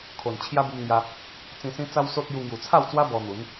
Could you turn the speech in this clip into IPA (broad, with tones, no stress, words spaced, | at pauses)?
kʰo˨˩n t͡ɕʰja˦bu˧mŋja˧ | t͡sĩ˧sĩ˦ t͡sa˦wso˦t̚ju˧ ŋju˨˩t͡sʰa˥˧wt͡swa˦ bɔ˧n̪u˨˦n